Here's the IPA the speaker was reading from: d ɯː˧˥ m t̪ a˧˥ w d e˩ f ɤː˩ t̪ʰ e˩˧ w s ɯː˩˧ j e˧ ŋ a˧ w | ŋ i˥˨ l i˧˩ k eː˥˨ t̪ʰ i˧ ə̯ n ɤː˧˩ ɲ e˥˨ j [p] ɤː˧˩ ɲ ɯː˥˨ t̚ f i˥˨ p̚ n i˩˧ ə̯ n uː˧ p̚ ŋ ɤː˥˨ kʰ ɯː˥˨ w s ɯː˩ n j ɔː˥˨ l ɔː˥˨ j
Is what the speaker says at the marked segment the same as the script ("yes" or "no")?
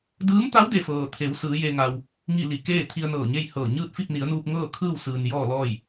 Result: no